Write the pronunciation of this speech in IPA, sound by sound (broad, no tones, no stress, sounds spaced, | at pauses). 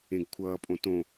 ẽ ɡ kʷʰ ʌː pʼ õ t õ